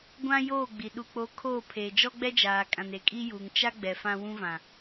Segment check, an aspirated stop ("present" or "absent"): present